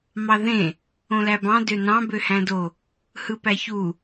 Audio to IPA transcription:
m ɑ ð ẽ | õ l æ b ɑ̃ d ø n ɑ̃ b ø h æ̃ d o | h ɯ p æ ç u

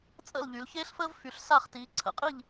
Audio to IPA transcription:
t͡sʼ ə̰˥˨ l ʎ y˩˧ l ç eː˥ ɬ f əː˥ v f y˩˧ ɬ s a˥˨ χ t iː˩˧ ǀʰ ə̰˩˥ qʼ i˥˨ ʎ

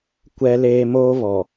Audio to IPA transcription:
kʷ ɛ˦ l eː˦ m oː˦ β ɔ˨

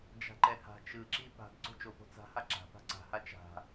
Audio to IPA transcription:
d͡ʒ a̤ ǃ ɛ h a̤ t͡ʃ ɯ ǁ i p a̤ d ǀ o̤ t͡ʃ o p o̤ t͡s a̤ h a ǁ a̤ p a̤ ǀ a̤ h a t͡ʃ a̤

